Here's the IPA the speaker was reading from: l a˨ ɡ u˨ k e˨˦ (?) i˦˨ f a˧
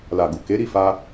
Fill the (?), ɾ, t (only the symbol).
ɾ